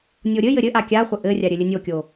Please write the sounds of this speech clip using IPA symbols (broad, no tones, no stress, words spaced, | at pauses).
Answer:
nʲoɾʲɘjɘ ɾʲɘʔa kʲaχʷɘ ʔɘrʲa ɾʲɘlʲɘnʲokʲo